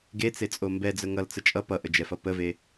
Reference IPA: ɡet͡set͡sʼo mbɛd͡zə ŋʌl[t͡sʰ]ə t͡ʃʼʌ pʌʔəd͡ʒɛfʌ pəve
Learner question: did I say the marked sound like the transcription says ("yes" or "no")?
no